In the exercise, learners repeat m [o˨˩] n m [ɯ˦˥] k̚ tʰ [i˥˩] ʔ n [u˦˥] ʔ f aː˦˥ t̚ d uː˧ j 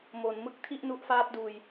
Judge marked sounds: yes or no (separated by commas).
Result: no, yes, yes, yes